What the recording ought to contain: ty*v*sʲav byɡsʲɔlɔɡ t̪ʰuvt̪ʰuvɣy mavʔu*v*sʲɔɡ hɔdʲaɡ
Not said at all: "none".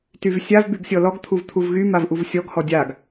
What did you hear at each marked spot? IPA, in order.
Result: v, v

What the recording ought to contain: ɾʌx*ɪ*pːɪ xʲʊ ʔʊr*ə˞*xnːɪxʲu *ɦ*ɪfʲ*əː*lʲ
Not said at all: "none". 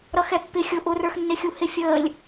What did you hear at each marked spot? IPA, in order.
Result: ɛ, ə˞, h, əː

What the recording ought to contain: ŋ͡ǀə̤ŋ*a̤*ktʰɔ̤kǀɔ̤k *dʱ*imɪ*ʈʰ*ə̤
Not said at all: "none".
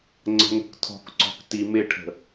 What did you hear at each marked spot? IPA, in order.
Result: ə̤, t, ʈʰ

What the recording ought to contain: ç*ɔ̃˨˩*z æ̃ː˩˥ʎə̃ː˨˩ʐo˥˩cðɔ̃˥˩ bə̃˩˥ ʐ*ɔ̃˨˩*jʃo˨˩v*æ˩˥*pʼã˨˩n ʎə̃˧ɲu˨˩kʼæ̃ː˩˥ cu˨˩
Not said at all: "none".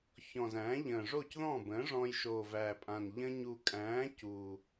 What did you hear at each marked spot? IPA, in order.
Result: ɔ̃˨˩, ɔ̃˧, æ˨˩

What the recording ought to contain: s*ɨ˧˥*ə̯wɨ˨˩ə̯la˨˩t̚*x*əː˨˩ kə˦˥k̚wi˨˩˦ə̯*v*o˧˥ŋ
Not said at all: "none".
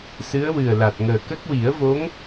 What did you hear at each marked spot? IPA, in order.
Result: ɨ˧˥, ŋ, v

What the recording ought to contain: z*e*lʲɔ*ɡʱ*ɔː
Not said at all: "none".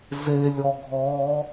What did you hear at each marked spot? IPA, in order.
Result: e, ɡʱ

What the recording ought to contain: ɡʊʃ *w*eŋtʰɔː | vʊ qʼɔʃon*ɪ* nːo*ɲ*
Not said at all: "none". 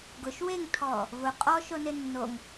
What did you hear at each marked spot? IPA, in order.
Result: w, ɪ, ŋ

